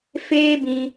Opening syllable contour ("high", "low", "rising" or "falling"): high